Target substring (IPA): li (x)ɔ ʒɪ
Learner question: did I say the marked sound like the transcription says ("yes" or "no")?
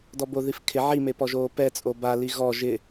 no